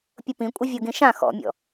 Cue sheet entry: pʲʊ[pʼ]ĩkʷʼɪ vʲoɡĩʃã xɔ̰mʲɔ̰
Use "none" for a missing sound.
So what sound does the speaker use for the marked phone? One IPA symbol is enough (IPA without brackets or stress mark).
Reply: p